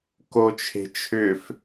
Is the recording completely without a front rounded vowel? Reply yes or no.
no